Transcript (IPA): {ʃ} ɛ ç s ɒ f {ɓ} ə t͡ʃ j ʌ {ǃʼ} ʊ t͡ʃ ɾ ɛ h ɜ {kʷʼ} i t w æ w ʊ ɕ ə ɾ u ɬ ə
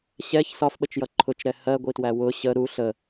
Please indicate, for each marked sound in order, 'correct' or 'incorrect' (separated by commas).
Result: incorrect, correct, incorrect, incorrect